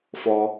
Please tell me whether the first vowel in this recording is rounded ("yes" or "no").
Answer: yes